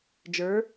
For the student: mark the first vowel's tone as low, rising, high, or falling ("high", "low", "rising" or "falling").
rising